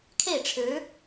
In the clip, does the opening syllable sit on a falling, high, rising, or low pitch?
falling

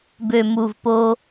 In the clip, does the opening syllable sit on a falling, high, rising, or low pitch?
low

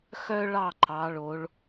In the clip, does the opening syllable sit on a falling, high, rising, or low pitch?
high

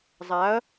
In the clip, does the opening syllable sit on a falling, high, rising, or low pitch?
rising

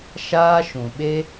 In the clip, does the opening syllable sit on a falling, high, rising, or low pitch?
high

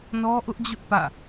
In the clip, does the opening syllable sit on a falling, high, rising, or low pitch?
high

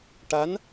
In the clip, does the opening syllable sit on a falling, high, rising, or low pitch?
rising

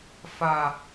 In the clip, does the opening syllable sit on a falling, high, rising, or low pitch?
low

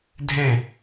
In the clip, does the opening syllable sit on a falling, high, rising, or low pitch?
falling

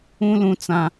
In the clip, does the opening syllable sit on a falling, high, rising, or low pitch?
high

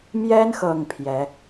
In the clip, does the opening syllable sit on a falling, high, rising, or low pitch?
high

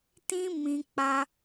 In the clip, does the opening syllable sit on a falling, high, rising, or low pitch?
high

